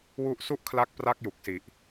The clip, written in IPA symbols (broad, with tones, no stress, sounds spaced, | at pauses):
w u˦˥ ʔ s u˥˩ ʔ kʰ l a˦˥ k̚ p r a˦˥ k̚ j u˨˩ k̚ s i˨˩ ʔ